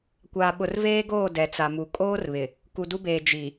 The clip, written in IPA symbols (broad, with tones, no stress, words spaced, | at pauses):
kʷaː˨ɓʊ˨rveː˦ɡoː˦˨ dɛ˨t͡sa˨mu˨ kʼoː˦rβɪ˨ | ku˨du˦beː˨ d͡ʒi˨